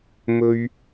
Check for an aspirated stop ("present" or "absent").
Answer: absent